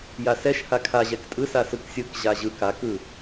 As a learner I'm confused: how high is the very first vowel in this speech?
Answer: low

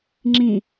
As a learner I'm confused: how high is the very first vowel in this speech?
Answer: high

